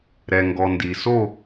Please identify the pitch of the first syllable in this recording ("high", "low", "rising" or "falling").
low